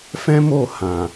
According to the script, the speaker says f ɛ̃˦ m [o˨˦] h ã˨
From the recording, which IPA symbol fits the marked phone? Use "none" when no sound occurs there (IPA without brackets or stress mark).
o˦˨